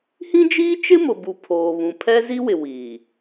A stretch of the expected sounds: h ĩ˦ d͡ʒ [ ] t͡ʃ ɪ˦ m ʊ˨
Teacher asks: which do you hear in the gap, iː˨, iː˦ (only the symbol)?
iː˦